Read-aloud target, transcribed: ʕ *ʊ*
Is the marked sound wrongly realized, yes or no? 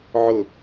no